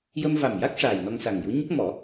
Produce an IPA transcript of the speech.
j ə˧ m v a˨˩ m j a˦˥ k̚ ʂ aː˨˩ j n ɔ˧ ŋ s a˨˩ ŋ j u˧˥ ɲ ə˦˥ k̚ m ɔ˨˩˦

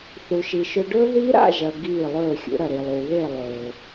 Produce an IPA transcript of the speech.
θ u˨ ʃ i˨ ʃ ɵ˧ ɖ ɵː˦ ð iː˦ ɾ a̰˦˨ ʒ ɐ˨ ɡ iː˦˨ lˠ ɵː˦˨ xʲ ṵ˨˦ ɾ ɐ˨ ɾ i˨ lˠ uː˨ β e˦˨ lˠ ɵː˨

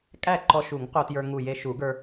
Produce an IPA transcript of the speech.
kʼ æ˥˩ ǃ ɔ˧ ʃ u˨˩˦ ŋ q o˧ t j ə˞˧ ŋ u˧˩ j e˧ ʃ u˨˩˦ ɡ ə˞˧

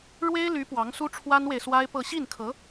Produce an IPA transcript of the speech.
ɻ w e˥ ɪ̯ l y˧˥ p w ɑ˧˥ ŋ s u˥ ʈ͡ʂʰ w a˥ n w e˨ ɪ̯ s w a˥ ɪ̯ p ɤ˥˧ ɕ i˥˩ n kʰ ɤ˧˥

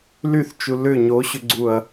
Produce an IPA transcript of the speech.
l y θ t͡ʃ u l ʏ ɲ o ɕ ʏ ɡ͡ǀ u ɐ̯

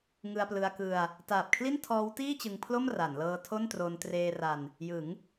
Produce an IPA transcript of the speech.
ŋ ɯ˧ a̯ p l ɯ˧ a̯ k ɯ˧ a̯ | t aː˨˩ p̚ kʰ l i˥˩ n tʰ ɔː˦˥ w t iː˥˩ t͡ɕ ɯ˧ ŋ pʰ l o˥˩ m r a˩˦ n l ɤː˧ tʰ o˥˩ n t r o˧ n t r eː˧ r a˧ n | j ɯ˩˦ ŋ

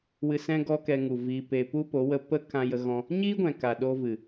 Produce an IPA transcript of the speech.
w ɨ˧ s ɛ̃˦ ɡ ɔ˦ k ɛ˧ ŋ u˨ v iː˧ p e˧ p u˦ p o˨˦ w ə˧ p ə˦ k ã˧ j ə˧ ɣ ɔ̃˧ | ɲ iː˦ ɡʷ ɛ̃˨ k a˨ ɗ o˧ v ɨ˨

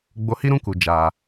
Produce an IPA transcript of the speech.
ɡ͡b o˧ h i˦ ɾ ũ˦ k u˨ d͡ʒ aː˨

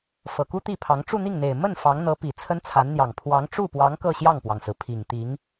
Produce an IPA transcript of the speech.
f ɤ˨˩ k u˥ t̪ i˥˩ pʰ ɑ˧˥ ŋ ʈ͡ʂ u˥˧ n̪ i˥˩ ŋ n̪ e˨˩ ɪ̯ m ə˥˩ n f ɑ˧˥ ŋ n̪ ɤ˧˥ p i˨˩ t͡sʰ ə˥ n t͡sʰ a˧˥ n n̪ j ɑ˨˩ ŋ pʰ w ɑ˧˥ ŋ ʈ͡ʂ u˥˩ p w ɑ˧˥ ŋ k ɤ˥˧ ɕ j ɑ˥˩ ŋ p w ɑ˩ ŋ s ɹ̩˩ pʰ i˨˩ ŋ t̪ i˧˥ ŋ

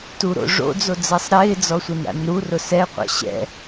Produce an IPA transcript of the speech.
t u ɾ o̰ ʐ o̰ d͡z o d͡z ɛ sˤ ɾ ɪː d͡z ɔ sʷ e n ɾ a̰ n ɾ u r ʊ s ɛ qʷ a̰ ɕ ɛ̰

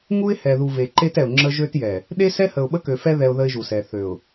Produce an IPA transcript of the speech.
ŋ u˦ ɪ̯ h ɛ˨ ð u˨ v e˨ ǃ e˦ t ɛ˨ ʊ̯ ŋ͡ǁ ə˦ ʒ ø˦ t j ɛ˨ | ɗ e˦ s ɛ˦ h ə˨ ʊ̯ ɓ ə˦ k ø˨ f ɛ˦ ð ɛ˦ ʊ̯ ð ə˦ ɪ̯ ʒ u˨ s ɛ˨ θ ø˨ ʊ̯

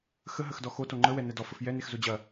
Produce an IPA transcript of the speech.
x ə ɦ ə x d ɔ x o t o ŋ͡ǃ ə w ɛ n ɛ d ɔ f ə f j ɛ n e x z o d͡ʑ ɐ

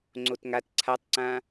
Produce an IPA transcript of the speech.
ŋ͡ǀ o t ŋ a t ǀʰ a tˤ ǀ ã

